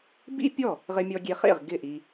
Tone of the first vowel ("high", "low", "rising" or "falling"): high